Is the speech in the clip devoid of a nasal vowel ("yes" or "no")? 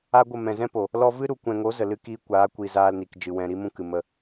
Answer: no